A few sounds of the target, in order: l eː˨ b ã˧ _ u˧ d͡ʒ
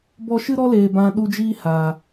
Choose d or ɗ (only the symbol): ɗ